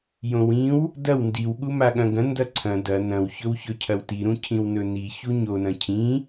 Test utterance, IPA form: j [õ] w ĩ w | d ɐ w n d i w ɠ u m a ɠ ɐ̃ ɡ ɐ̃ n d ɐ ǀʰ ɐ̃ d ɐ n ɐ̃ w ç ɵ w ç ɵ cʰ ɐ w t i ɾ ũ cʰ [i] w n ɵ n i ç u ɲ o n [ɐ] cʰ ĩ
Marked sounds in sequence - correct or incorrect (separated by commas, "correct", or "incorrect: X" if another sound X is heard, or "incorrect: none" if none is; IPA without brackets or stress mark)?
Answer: correct, incorrect: ĩ, incorrect: ɐ̃